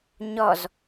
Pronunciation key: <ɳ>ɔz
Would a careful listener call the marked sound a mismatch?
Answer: yes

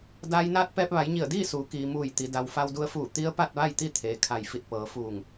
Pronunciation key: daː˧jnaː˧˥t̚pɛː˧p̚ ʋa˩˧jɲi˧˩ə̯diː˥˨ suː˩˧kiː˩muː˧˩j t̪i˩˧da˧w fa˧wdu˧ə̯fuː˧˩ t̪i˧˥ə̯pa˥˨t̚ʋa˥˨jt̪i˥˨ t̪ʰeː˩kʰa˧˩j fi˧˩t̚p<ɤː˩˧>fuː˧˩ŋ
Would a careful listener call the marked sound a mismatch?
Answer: no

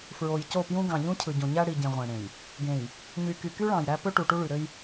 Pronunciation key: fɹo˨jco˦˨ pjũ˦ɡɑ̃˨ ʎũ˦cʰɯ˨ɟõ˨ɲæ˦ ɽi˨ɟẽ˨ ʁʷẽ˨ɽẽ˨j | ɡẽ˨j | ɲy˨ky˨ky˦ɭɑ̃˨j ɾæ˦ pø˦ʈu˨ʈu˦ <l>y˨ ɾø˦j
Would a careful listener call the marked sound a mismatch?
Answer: yes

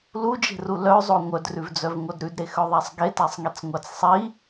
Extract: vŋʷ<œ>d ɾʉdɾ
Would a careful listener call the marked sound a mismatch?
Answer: no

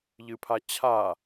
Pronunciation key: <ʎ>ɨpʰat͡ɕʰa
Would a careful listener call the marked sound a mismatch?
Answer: no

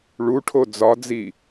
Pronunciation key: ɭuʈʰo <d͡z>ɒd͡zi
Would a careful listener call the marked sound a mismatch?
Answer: no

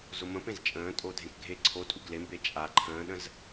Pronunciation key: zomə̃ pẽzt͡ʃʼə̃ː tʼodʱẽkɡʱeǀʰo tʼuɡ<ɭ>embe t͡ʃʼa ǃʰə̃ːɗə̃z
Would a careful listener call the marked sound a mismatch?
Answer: yes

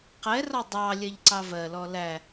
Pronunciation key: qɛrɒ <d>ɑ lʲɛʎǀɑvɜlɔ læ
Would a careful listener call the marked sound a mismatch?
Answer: yes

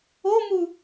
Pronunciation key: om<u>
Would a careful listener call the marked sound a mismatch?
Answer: no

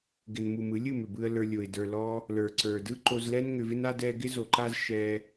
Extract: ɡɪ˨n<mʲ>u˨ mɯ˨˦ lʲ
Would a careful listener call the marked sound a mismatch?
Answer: yes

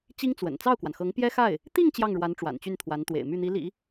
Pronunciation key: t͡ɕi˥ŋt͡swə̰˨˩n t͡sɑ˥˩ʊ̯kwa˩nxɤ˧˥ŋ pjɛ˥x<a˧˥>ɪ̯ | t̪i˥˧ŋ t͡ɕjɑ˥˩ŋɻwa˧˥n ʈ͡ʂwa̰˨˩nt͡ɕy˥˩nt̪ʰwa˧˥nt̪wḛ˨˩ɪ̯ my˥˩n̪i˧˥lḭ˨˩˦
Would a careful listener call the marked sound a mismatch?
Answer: yes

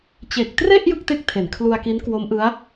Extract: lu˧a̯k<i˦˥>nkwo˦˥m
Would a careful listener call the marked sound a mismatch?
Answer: no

